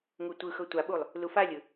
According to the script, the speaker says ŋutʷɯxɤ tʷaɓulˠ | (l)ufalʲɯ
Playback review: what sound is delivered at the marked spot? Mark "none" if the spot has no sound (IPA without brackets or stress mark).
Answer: l